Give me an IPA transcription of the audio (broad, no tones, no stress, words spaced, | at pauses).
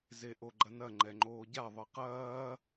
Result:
zeʔoɡ͡ǃɐnɐ ŋ͡ǃɛŋ͡ǃoːɟa ðˤɨqɐː